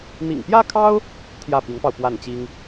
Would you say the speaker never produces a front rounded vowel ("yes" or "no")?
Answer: yes